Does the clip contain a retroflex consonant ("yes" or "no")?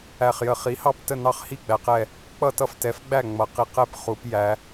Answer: no